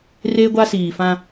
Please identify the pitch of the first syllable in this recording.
high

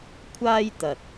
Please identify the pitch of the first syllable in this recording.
high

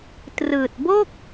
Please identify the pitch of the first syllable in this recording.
low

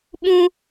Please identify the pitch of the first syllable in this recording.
high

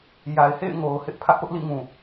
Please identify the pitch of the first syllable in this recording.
low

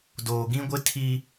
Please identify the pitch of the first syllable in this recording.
low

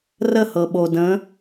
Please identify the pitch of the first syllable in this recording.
falling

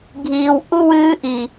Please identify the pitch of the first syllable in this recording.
low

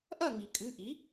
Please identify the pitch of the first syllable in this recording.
falling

